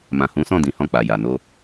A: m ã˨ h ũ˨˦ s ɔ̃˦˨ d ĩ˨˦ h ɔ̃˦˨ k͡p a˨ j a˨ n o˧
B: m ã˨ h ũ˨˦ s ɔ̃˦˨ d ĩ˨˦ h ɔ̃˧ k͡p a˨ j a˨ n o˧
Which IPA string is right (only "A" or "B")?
A